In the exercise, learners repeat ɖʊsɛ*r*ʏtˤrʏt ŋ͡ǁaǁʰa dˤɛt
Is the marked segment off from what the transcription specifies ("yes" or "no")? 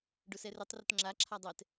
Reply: no